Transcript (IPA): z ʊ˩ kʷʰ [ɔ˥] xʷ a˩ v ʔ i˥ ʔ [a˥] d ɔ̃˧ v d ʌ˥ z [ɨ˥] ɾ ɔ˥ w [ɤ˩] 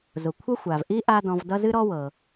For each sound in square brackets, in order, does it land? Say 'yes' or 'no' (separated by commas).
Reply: no, yes, yes, yes